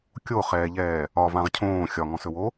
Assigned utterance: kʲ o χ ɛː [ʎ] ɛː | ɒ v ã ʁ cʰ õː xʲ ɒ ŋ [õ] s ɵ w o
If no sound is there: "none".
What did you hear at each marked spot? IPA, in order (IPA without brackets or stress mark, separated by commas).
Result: ʎ, ɔ̃